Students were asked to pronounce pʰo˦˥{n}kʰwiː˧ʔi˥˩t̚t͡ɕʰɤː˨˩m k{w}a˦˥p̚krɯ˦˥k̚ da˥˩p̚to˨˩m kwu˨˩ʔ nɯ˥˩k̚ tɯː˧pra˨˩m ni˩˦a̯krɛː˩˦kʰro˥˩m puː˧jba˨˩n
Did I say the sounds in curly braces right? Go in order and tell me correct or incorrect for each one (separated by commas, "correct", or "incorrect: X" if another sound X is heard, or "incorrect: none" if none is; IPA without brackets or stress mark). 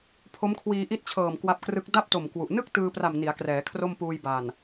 incorrect: m, correct